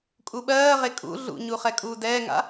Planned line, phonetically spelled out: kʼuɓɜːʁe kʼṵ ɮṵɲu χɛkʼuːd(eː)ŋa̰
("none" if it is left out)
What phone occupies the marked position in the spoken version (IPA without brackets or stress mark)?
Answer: ɛː